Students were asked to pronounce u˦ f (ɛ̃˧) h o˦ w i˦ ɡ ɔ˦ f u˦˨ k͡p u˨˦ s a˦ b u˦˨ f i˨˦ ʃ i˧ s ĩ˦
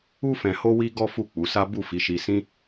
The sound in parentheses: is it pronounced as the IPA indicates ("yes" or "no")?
yes